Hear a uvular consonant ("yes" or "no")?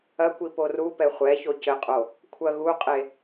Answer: yes